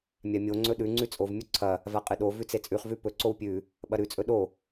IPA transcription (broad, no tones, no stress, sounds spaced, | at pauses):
mʲ a mʲ o ŋ͡ǀ ɵ ɗ ʉ ŋ͡ǀ ʉ t͡sʼ o v mʲ u ǀʰ ɐ | v a qʼ ɨ ɗ o v ʉ t͡s e t͡sʼ ʉ χ v ʉ p ɵ ǀ o w pʲ ʉ | ɓ ɐ ɾ ʉ t͡sʼ ɵ ɗ o